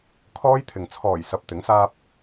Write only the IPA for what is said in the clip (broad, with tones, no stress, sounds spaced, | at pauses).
kʰ ɔː˥ j t̪ʰ ɪ˨ ŋ t͡sʰ ɔː˨˩ j s ɐ˧ p̚ t̪ ɪ˨˥ ŋ s aː˥ p̚